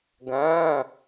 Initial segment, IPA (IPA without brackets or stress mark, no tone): ɡ